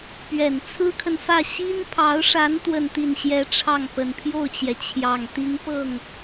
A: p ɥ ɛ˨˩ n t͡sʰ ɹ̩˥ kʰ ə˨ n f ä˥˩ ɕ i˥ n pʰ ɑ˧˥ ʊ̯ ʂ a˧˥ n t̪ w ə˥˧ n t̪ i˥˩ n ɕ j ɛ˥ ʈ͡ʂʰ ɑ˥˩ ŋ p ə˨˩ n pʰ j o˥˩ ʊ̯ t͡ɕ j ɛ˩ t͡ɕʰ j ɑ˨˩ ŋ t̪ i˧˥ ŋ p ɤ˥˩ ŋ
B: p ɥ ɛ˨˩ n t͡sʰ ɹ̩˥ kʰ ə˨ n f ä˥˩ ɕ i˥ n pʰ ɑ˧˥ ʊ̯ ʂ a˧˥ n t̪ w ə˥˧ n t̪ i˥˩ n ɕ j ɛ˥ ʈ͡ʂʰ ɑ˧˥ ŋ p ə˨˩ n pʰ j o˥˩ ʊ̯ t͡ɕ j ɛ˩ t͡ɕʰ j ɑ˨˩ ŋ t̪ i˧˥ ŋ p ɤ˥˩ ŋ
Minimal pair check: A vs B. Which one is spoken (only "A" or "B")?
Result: A